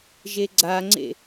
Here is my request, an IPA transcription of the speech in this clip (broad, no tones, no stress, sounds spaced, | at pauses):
ʒ e ɡ͡ǀ a ŋ͡ǀ ḛ